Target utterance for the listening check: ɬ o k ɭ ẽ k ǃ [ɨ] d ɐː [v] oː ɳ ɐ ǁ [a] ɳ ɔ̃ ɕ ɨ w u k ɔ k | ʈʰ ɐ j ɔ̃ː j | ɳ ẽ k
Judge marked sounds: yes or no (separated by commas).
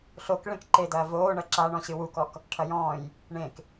no, yes, yes